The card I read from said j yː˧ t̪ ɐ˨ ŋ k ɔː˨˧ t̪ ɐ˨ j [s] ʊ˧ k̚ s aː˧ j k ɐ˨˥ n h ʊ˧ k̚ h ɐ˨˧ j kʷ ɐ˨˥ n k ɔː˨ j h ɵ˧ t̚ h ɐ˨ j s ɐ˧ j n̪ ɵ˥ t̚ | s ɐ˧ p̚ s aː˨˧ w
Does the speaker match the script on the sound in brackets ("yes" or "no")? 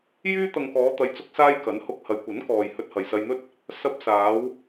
no